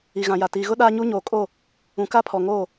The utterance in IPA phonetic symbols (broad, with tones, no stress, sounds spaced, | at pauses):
i˨ ɣ ã˨ j a˨ t iː˨ ɣ ʊ˦ ɗ aː˦ ɲ u˦ ɲ oː˨ kʼ o˦˨ | ũ˨ k a˦ pʰ ɔ˨ ŋ oː˦˨